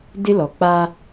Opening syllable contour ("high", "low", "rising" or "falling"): high